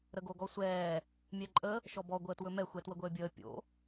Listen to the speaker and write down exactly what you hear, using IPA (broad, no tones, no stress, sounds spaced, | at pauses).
ɾ ə ɡ o ɡ ɔ sʷ ɛː | mʲ ɛ ǃʼ ə | ʃ ɔ b ɔ ɡʷ əː t w ɵ m ɛ xʷ ɛ t w ə ɡʷ əː bʲ əː pʲ o̰